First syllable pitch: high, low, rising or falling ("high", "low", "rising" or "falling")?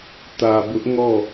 low